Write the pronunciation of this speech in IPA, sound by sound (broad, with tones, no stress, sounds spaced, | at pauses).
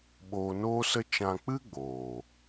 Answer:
ɓ oː˧ n oː˦ s ə˦ t͡ʃ ã˧ k͡p ɨ˦ ɡ͡b oː˨